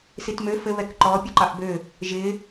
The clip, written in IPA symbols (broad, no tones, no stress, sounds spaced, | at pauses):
s i t m ø f ɘ β ɛ k ǃ ɔ pʲ ɔ ǃ ɑ ʔ b ø | ʒ ɪ